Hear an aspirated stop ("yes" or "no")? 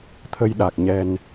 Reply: yes